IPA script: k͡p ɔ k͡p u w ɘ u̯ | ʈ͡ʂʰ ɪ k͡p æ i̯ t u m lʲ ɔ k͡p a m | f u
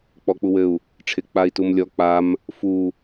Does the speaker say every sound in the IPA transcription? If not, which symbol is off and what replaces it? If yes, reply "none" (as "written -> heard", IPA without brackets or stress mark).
æ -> a